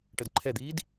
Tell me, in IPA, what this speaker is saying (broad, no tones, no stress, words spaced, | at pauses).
ʈədǃʰɛd̪iːd